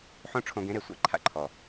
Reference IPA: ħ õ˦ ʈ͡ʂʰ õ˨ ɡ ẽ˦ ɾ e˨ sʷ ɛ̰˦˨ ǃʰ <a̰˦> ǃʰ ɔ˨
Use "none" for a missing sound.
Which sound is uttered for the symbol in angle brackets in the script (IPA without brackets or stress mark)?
a̰˦